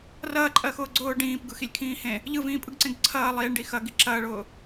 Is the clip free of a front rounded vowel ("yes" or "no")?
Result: yes